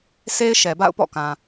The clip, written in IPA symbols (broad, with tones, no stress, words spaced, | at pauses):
se˦ɪ̯ ʃɛ˨ba̰˦˨ʊ̯pɔ̰˦˨kã˨